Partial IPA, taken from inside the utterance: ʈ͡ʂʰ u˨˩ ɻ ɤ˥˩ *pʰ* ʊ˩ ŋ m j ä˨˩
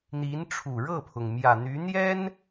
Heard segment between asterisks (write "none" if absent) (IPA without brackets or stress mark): pʰ